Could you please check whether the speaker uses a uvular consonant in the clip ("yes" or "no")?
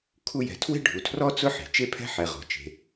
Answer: yes